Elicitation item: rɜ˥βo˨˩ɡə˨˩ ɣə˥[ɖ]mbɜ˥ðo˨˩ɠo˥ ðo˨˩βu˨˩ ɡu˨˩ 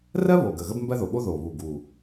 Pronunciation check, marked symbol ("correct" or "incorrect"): incorrect